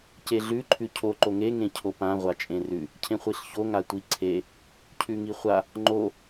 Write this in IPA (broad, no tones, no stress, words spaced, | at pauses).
ceɮʉ ǃʰʉcʰo ǃoŋe ŋẽcʰopã ʁʷat͡ʃʼẽrʉ | cʰẽχʷiɬço ŋatʷiǀʰe | cʰʉŋiχʷa | ŋ͡ǃo